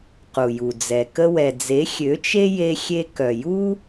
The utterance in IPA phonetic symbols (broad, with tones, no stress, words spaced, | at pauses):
qu˨ju˨d͡zɛ˨ kə˧wɛ˨d͡ze˨˦ xʲø˨˦t͡ʃe˦ je˧xʲe˧ kœ˨ ju˦